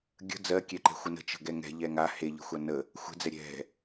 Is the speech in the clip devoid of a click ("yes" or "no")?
no